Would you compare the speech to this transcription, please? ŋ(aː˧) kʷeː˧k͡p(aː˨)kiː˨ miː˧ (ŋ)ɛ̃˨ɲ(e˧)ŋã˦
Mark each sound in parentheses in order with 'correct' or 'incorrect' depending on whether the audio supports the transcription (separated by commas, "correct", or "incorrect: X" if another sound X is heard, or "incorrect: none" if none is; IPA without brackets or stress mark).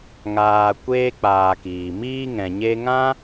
incorrect: aː˨, correct, correct, correct